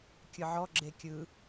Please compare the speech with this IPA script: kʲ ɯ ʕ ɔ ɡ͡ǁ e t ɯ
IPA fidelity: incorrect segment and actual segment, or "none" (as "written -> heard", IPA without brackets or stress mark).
t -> kʲ